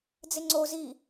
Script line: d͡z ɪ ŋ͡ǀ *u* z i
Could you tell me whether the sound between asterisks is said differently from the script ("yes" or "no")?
yes